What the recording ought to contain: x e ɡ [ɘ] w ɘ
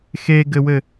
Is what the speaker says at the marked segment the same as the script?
yes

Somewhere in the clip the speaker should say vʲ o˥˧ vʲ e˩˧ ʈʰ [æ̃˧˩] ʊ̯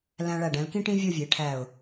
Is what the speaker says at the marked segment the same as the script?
no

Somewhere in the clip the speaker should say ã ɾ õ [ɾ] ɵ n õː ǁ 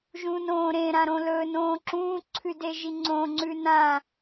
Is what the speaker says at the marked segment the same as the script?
no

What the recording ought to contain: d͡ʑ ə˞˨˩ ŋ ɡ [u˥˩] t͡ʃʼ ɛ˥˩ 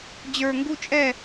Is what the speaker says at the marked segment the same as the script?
yes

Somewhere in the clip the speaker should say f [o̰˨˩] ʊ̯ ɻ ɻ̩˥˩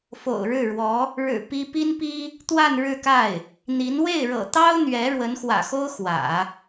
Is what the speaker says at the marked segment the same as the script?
yes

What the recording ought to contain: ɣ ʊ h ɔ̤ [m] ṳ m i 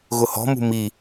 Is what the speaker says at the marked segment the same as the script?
yes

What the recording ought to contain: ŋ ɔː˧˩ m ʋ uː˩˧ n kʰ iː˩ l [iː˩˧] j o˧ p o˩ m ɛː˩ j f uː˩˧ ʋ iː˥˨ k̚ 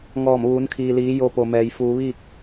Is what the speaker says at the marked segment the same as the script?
yes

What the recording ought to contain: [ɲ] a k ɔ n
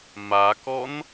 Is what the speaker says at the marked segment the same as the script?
no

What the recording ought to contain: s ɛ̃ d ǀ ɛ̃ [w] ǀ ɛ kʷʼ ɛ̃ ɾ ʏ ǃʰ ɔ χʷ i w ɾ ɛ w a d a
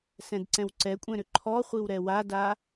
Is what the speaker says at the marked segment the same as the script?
yes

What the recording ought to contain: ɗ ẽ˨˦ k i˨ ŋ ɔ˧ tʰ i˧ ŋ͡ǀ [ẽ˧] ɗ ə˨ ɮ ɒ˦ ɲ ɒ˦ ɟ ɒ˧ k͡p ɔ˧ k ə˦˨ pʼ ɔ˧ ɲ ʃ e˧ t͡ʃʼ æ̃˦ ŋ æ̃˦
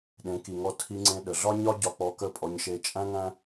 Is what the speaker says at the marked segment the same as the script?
yes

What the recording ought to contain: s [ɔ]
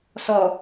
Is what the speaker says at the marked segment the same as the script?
yes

